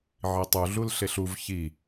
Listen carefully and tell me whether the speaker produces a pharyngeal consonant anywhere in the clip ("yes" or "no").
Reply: yes